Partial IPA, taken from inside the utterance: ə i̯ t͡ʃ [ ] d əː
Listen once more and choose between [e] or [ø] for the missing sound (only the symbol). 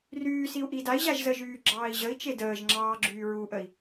e